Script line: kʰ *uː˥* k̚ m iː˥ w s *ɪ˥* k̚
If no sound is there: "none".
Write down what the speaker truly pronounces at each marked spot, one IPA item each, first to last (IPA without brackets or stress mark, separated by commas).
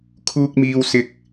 uː˥, ɪ˥